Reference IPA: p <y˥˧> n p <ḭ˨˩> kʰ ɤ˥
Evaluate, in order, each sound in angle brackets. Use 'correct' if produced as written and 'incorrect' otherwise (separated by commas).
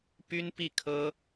incorrect, incorrect